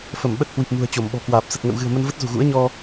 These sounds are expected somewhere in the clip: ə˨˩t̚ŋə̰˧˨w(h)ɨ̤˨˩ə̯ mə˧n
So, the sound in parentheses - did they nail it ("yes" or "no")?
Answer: no